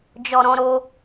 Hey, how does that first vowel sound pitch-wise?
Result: low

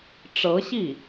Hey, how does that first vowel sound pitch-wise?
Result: rising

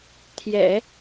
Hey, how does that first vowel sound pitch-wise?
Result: low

